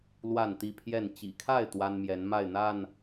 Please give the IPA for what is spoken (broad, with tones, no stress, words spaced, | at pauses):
lwa˥˨nt̪i˥˨pʰjɛ˥˨n t͡ɕḭ˨˩kʰa˥˨ɪ̯ t̪wa˦nmjɛ˨˦nma˥˨ɪ̯n̪a˥˨n